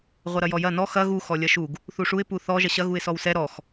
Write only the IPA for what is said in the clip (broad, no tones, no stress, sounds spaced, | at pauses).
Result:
ʁʷ ɐ ɾ ɐ j ɔ j ɐ n ɔ x ɐ ɣ u x ɔ lʲ ɐ ʃ u ɡ | θ u ʂ u ɪ̯ p u θ ɔ ʒ ɐ ɕ ɐ ɣ u ɪ̯ s ɔ w s ɛ ɾ ɔ x